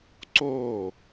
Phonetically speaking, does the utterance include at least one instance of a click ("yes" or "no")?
yes